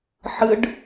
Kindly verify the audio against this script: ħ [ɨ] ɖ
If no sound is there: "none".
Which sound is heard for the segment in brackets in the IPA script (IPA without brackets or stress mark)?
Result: ɨ